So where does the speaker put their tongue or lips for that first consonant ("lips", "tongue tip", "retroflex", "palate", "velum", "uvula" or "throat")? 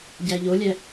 palate